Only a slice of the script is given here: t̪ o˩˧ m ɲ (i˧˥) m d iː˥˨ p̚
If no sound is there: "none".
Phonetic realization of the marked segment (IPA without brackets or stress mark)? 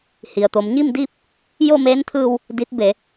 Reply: i˥˨